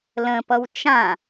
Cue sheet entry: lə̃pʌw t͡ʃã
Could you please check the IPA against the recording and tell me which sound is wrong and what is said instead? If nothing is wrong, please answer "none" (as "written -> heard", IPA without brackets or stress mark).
none